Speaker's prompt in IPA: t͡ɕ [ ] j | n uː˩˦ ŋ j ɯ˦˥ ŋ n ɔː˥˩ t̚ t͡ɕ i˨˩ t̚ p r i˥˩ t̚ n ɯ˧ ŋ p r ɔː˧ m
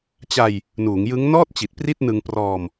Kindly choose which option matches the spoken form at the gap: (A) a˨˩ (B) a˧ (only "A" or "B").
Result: B